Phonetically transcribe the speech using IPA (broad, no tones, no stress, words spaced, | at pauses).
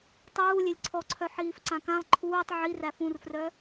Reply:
tˤuː lʲelʲǀʰɔǀʰœ ħiːfǀãkãlˠ ǃʰuːtˤ ʕiræf ũrfrœ